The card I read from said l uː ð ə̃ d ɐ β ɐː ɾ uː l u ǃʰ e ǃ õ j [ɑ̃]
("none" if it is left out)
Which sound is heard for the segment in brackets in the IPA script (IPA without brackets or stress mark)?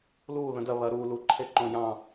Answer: ɑ̃